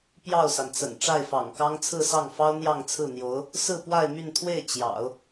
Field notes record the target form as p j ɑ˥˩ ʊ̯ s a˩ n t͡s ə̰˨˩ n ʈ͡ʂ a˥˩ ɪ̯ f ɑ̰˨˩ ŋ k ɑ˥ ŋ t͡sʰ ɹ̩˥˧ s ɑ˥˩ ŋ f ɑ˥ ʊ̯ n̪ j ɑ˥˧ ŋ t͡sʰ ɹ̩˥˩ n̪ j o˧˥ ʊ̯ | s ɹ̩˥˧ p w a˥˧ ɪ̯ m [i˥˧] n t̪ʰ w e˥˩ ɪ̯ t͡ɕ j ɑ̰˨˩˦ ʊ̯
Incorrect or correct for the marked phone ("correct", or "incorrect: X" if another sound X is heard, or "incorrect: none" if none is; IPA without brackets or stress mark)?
incorrect: y˥˧